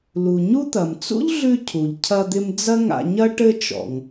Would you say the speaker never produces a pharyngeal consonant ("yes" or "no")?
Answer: yes